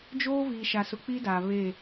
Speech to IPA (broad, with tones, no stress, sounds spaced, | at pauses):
d͡ʒ oː˦ v iː˨ ʃ a˨ s ʊ˨ k͡p i˦ d a˨ β e˦˨